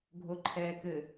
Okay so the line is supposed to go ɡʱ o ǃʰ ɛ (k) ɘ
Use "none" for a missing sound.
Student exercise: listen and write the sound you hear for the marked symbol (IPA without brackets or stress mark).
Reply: k